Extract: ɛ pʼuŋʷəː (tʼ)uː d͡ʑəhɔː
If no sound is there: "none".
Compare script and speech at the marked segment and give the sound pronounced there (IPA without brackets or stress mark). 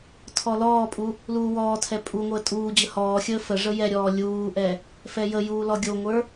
tʼ